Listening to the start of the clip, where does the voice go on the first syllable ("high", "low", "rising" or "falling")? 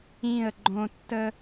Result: falling